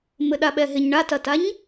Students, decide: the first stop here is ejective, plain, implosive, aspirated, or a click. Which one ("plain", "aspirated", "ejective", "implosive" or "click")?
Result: implosive